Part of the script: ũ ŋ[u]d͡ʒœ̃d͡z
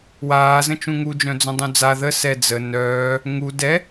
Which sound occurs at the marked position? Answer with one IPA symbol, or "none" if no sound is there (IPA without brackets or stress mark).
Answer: u